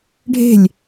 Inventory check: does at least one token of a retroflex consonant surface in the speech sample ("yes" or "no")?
yes